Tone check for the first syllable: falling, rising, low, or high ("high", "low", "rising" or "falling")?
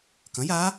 rising